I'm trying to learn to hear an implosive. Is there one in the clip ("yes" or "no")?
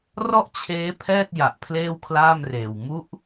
no